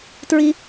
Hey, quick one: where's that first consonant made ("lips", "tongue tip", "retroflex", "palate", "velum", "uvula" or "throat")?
tongue tip